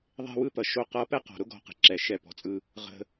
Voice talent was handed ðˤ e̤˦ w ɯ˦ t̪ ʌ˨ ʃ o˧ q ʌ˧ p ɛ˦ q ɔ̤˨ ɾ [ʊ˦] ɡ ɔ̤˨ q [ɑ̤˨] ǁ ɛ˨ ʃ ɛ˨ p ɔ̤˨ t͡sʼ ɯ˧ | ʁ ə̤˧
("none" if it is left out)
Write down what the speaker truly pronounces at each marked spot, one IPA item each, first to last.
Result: ʊ˦, ə̤˨

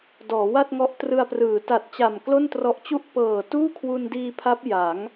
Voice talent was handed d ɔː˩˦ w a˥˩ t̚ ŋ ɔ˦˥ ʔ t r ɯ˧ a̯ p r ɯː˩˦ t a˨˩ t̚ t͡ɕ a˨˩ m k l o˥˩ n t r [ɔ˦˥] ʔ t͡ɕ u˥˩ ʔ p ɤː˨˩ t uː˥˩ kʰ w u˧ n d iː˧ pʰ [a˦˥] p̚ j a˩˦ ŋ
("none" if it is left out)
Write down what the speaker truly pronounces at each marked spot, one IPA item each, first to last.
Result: ɔ˦˥, a˦˥

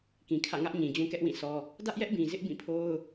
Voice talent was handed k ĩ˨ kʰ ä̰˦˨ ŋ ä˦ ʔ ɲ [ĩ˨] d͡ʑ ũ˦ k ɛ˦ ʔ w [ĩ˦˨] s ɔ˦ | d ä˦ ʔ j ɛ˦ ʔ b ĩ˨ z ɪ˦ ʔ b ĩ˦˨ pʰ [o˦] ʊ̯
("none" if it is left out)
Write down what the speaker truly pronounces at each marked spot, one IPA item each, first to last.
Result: ĩ˨, ĩ˦˨, o˦

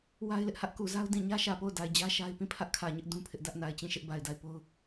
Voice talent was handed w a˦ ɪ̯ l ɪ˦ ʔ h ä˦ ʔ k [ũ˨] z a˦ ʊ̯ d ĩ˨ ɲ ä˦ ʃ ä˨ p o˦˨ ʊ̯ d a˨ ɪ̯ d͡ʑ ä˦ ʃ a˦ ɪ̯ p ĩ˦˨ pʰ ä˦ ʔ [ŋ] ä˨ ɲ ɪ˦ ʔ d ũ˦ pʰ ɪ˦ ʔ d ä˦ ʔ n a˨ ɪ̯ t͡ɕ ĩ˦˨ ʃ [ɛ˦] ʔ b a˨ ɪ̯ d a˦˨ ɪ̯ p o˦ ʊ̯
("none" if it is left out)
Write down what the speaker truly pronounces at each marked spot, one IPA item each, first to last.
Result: u˨, kʰ, ɪ˦

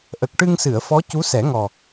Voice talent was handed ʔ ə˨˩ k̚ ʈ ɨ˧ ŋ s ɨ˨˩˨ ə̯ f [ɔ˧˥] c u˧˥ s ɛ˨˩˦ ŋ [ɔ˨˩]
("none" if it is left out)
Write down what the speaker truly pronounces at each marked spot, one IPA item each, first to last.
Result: ɔ˧˥, ɔ˨˩

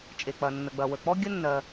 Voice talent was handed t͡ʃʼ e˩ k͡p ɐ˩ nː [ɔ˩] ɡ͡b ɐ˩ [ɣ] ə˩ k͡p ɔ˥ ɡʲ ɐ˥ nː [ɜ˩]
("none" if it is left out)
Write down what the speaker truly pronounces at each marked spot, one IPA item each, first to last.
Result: ə˩, w, ɜ˩

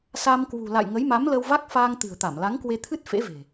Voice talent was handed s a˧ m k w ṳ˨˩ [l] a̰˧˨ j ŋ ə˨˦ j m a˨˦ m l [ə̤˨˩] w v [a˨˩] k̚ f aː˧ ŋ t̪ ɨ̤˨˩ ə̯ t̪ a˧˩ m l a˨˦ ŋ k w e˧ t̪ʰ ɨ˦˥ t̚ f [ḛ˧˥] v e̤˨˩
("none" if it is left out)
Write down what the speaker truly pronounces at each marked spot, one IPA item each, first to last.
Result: l, ə˧, a˦˥, ḛ˧˥

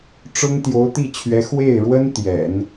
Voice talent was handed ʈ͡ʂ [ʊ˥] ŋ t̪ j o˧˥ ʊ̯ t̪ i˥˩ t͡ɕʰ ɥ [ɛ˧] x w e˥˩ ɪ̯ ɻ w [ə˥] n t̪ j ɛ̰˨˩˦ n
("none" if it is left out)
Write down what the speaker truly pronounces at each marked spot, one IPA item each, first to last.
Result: ʊ˥, ɛ˧˥, ə˥

